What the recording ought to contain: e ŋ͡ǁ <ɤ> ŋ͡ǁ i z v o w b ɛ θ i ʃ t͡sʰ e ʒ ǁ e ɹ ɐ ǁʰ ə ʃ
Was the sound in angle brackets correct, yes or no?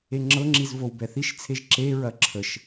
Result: yes